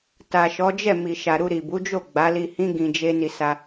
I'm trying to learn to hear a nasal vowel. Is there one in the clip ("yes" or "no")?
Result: yes